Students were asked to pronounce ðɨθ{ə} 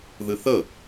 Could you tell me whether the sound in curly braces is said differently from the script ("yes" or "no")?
no